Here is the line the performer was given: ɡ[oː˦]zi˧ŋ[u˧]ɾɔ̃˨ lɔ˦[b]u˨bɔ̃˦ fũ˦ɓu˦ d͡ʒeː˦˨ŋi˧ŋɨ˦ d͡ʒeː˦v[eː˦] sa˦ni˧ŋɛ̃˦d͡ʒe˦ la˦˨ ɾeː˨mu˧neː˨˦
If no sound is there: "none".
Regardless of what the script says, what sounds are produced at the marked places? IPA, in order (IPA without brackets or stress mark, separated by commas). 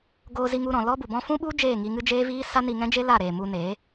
oː˧, u˧, b, iː˦